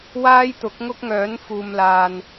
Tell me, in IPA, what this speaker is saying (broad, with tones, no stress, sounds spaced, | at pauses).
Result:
w aː˥ j t̪ ʊ˨˥ k̚ ŋ ʊ˥ k̚ ŋ œː˨˥ n f uː˨ m l aː˨ n